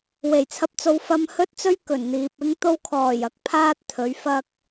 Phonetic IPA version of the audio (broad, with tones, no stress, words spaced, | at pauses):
we˨˩jt͡sʰɐ˧p̚t͡so˧w fɐ˧m hɵ˥t̚t͡sɵ˥ɥ kɵ˨˩nn̪iː˨p̚ ɪ˥ŋt̪o˥w kʰɔː˨˩jɐ˨k̚pʰaː˧t̚ t̪ʰɵ˨˥ɥfɐ˥k̚